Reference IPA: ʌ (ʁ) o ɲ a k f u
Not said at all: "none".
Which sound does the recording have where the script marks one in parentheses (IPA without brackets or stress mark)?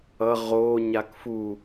ʁ